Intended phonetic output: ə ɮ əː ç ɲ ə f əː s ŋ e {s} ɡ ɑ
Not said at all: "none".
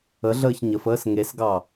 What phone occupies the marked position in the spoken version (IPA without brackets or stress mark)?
s